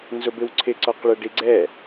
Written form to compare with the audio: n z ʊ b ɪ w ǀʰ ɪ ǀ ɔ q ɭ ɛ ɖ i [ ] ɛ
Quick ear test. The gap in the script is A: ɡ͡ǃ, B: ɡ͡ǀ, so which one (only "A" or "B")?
B